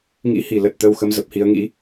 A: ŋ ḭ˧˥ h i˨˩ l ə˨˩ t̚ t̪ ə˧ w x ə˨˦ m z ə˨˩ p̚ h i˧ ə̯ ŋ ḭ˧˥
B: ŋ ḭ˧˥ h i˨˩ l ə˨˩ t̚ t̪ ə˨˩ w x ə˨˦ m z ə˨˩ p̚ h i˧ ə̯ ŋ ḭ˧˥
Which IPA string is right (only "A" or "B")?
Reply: A